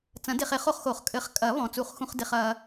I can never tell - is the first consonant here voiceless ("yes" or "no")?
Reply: yes